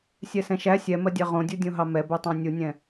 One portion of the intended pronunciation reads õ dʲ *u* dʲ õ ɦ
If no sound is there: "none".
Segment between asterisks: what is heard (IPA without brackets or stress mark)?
u